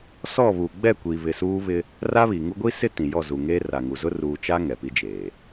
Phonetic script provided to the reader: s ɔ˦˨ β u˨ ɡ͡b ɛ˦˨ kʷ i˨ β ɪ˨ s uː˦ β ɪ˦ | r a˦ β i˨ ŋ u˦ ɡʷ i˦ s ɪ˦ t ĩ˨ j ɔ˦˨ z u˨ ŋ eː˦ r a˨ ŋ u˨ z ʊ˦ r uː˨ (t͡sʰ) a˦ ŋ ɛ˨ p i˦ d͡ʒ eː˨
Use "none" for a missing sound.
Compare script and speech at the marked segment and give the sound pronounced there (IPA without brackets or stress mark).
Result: t͡ʃ